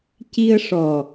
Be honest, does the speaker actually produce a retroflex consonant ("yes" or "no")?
yes